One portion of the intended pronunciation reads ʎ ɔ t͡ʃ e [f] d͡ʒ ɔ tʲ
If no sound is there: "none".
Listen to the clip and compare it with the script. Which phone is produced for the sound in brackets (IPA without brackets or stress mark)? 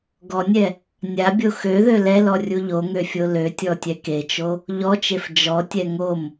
f